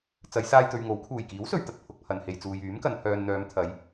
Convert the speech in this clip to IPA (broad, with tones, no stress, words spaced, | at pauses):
t͡sɐ˨˧jsaː˧jt̪ɵ˨ɥ ŋo˨˥w kʰuː˨˩jkiː˨˥wsɵ˨ɥt̪ɐ˨t̚ pʰʊ˨k̚pʰɐ˨nhe˨jt͡suː˨j yː˨˥mkɐ˨n pʰœː˨nn̪œː˨˧mt̪ʰɐ˨˧j